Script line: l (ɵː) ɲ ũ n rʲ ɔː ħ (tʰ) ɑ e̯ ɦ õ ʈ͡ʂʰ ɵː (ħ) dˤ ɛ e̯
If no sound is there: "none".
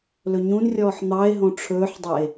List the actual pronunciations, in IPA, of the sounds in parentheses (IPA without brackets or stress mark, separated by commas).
ɵ, n̪, ħ